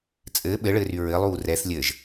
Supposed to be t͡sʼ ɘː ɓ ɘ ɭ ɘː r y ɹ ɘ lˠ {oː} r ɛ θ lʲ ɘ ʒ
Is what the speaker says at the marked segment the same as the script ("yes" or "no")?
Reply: no